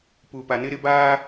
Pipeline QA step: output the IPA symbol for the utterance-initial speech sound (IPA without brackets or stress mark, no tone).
p